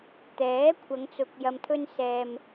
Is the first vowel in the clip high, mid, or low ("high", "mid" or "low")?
mid